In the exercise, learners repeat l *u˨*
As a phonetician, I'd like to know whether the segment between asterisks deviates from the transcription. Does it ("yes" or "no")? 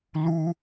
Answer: yes